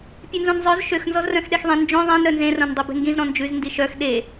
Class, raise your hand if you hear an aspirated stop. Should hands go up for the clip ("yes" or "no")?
no